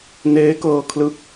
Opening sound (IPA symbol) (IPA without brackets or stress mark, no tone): n